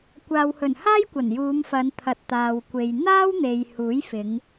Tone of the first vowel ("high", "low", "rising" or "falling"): low